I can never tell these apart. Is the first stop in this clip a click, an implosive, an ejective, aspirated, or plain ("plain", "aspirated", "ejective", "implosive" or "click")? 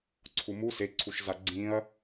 click